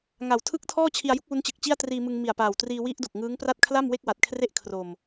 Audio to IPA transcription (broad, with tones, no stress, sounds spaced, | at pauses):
ŋ a˨˩ w tʰ ɯ˥˩ k̚ tʰ ɔː˥˩ t͡ɕʰ i˧ a̯ j u˦˥ k̚ w u˦˥ n t͡ɕ ɯ˨˩ k̚ t͡ɕ i˥˩ a̯ t r iː˧ m ɯ˧ ŋ m i˨˩ a̯ p aː˨˩ w t r iː˧ w i˦˥ ʔ d o˨˩ k̚ ŋ ɯː˦˥ ŋ p r a˥˩ t̚ kʰ l a˥˩ m w e˥˩ k̚ w a˨˩ t̚ kʰ r e˥˩ ʔ kʰ r o˧ m